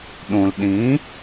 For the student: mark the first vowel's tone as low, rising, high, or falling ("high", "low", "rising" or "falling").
low